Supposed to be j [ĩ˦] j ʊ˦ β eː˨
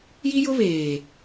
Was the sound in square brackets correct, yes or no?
no